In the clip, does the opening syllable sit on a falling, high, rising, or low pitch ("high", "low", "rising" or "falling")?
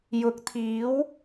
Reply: rising